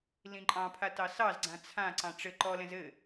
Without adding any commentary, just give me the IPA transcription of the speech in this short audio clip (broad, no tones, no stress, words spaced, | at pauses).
lĩǃʼɑ̃pʰa tɑsɑzɡ͡ǀã t͡sʰãǀɑ̃ ʈ͡ʂɘ ǃɔlɛ̃z ɘ